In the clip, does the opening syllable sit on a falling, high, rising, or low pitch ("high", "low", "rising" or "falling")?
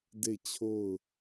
falling